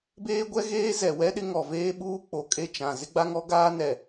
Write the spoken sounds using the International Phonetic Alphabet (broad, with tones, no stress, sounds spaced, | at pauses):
b eː˦ ɡʷ ɛ˦ ɣ eː˦ z ɛ˨ w ɛ˦ ɗ ɪ˦ ŋ ɔ˨ v eː˦ ɓ uː˦ k͡p o˨ kʼ e˦˨ t͡ʃ ã˨ z ɪ˦ ɡ͡b a˦ ŋ ɔ˦ ɡ aː˦ n ɛ˨